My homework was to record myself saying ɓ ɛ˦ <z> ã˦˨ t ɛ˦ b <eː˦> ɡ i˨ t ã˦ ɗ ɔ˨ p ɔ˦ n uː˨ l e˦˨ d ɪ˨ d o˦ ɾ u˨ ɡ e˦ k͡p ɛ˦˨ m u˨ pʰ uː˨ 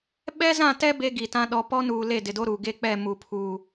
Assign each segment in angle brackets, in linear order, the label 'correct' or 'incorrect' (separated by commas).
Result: correct, incorrect